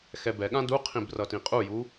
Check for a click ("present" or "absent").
absent